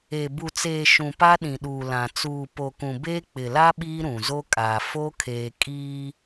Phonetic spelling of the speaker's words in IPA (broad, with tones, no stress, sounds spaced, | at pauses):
e˨ b u˨ t͡s eː˨ ʃ ũ˨ p a˦ ɗ ĩ˨ ɗ uː˨ l ã˨ t͡s uː˨ p o˨ k ũ˨ b eː˦ k͡p ɪ˨ l a˦ ɓ iː˦ ɾ ũ˨ z o˦ kʼ aː˨ f o˦ kʰ eː˨ kʼ iː˦